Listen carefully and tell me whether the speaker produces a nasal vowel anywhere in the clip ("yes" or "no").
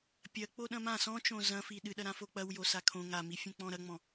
yes